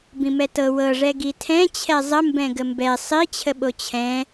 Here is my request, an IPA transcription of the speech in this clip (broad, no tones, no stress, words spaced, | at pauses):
bĩmɛtɤ wɤʐɛ ɡitʰɛ̃ t͡ɕʰɛzˤə mbɛ̃ɡəmbɛ sˤit͡ɕʰəɓo t͡ɕʰɛ̃